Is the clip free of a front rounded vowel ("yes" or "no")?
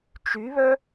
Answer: no